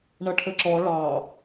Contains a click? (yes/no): yes